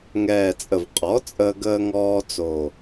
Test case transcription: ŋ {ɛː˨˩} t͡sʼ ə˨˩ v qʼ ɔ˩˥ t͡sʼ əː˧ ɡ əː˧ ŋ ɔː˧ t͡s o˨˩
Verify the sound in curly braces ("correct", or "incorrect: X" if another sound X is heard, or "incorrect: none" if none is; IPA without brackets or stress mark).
correct